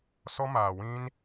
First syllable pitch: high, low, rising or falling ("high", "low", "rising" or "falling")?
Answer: high